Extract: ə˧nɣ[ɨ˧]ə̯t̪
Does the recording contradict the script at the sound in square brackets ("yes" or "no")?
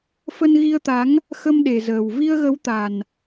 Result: yes